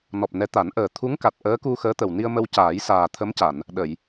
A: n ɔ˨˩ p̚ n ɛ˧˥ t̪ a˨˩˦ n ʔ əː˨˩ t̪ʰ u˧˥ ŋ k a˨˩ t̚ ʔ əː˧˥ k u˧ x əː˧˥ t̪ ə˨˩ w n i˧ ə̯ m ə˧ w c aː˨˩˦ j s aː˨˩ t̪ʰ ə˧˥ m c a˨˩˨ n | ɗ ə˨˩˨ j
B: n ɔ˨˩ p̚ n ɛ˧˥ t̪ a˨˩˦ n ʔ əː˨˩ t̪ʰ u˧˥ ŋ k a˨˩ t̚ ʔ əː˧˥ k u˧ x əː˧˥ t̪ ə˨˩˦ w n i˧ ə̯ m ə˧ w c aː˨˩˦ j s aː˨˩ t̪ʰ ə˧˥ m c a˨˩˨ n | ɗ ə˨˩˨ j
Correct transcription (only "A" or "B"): A